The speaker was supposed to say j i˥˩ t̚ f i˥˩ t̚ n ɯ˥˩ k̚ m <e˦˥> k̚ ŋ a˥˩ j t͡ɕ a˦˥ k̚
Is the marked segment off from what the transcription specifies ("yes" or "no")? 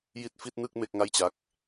yes